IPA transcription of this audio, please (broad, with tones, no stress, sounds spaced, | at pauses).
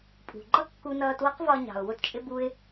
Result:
pʼ ṳ˩ ɡ͡ǃ ʌ˥ kː u˧ n ʌː˧ t w ʌ˥ q v ɒ˧ ɲ ɑ̤˩ ʊ̯ w ʊ˧ t t͡ʃʼ ɪ˧ b u˧ ɪ̯